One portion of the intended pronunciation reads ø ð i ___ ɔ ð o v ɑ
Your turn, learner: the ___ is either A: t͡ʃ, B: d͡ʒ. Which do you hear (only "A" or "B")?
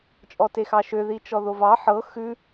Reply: A